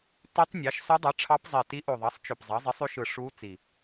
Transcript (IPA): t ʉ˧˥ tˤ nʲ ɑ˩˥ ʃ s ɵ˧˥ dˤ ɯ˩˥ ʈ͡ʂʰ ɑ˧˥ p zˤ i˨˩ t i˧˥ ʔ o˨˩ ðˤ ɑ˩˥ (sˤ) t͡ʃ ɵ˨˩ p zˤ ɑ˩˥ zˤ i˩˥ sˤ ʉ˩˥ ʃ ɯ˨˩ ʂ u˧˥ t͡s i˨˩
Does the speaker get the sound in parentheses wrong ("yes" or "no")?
no